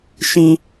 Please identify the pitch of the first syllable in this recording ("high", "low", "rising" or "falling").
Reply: high